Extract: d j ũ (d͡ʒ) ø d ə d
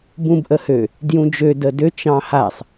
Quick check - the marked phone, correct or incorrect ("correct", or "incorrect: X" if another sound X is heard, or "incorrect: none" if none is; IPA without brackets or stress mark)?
correct